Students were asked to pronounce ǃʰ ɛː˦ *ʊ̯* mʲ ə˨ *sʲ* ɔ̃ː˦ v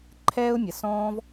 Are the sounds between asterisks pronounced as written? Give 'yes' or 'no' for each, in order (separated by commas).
yes, no